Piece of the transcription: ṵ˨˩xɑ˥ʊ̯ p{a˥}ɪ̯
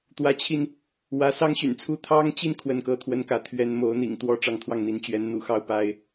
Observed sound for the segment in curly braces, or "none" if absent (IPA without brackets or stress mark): a˥